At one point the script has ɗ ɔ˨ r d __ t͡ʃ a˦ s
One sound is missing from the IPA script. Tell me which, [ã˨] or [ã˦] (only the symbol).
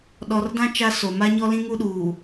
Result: ã˦